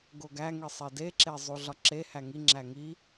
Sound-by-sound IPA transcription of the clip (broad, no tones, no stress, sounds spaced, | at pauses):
ɡ o ɡ æ ŋ i sˤ e d e ǁ e zˤ u ɮ ɒ ǁ e h æ ŋ i ŋ͡ǁ æ ŋ i